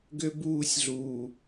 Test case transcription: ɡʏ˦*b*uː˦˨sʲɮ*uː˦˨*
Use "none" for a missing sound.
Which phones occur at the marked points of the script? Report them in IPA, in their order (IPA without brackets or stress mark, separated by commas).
b, uː˨